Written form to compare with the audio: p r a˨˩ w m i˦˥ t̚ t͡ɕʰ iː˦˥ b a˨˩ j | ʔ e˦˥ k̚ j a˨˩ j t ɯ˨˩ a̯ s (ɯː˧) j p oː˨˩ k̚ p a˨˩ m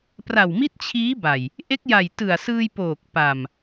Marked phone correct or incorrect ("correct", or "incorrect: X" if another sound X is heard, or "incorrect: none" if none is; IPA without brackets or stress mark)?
correct